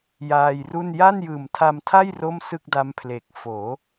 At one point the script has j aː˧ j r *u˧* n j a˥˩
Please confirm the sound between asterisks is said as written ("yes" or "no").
no